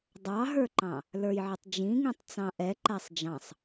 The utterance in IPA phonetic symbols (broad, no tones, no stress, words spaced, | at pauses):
dˤɑɦə˞ǃɑ̃ | lə˞jʕɪtˤd͡ʒĩŋĩtˤ t͡sɑ̃ʔɛ ǃæsˤd͡ʒɑ̃sˤ